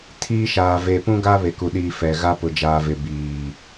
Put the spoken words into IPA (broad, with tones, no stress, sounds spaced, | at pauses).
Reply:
tʰ iː˦ ʃ aː˨ v e˨ p ũ˦ ɡ a˦ β e˨ k u˨ ɗ iː˨ f ɛ˨ ɣ a˦ p ʊ˨ d͡ʒ aː˨ v ɪ˨ b iː˨